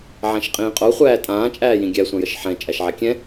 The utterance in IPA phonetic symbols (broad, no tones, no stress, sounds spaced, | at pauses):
ʕ ã ʃ qʼ ĩː qʼ o χʷ æː tʼ ãː t͡ʃʼ æː j ĩ ɡʲ æ sʷ ã j ə ʃ ħ ɛ̃ t͡ʃʼ æ ʃ ʕ a kʲ ɛ̃